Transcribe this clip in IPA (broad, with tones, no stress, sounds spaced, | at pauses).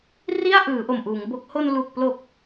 r i˥˩ a̯ ʔ ɯː˩˦ ʔ o˨˩ m ʔ uː˩˦ ŋ b o˦˥ k̚ h o˧ n l uː˨˩ k̚ p l o˨˩ k̚